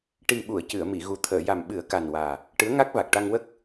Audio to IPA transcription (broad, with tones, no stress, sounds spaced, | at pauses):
ʈ i˨˩ ɓ u˨˩˨ ə̯ c ɨ˨˩˨ ə̯ m i˨˩˨ ɣ u˨˩ t̪ʰ əː˨˩˨ j a˨˩ m ɓ ɨ˨˩˦ ə̯ k a˨˩ n w aː˨˩ | ʈ ɨ˧˥ ə̯ ŋ a˦˥ k̚ v a˨˩ k̚ ʈ a˧ ŋ w ə˦˥ k̚